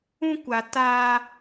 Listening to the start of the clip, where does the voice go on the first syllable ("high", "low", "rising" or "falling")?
high